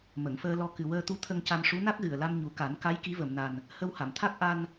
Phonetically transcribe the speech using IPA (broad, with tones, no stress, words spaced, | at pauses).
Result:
mə˨˩˨ŋfəː˧lɔ˧ kɨ˨˩wəː˧t̪u˧˥ t̪ʰə˧ŋca˧mʂu˧˥ na˦˥k̚ɣɨ˨˩ə̯la˧m ɲu˨˩˦ka˨˩˦nka˧˥j ki˧˥və˨˩˨mna˨˩n | hə˧wha˨˩˨mt̪ʰa˦˥k̚ ʔa˧n